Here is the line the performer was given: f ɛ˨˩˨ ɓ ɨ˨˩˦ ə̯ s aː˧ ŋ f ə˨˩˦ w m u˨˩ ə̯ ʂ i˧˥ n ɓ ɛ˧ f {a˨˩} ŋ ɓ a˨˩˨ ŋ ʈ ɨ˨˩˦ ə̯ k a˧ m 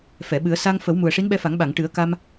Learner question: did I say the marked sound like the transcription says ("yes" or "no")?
no